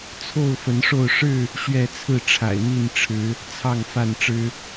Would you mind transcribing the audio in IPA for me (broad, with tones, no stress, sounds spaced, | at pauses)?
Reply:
t͡sʰ o˥˨ ʊ̯ f ə˨˦ n ʂ o˥˨ ʊ̯ ʂ ɻ̩˥˨ | ɕ ɥ ɛ˥˨ t͡sʰ ɹ̩˥˨ ʈ͡ʂʰ a̰˨˩ ɪ̯ n̪ i˥˨ n ʈ͡ʂʰ ɻ̩˨˦ | t͡sʰ ɑ˥˨ ŋ f a˥˨ n ʈ͡ʂ ɻ̩˦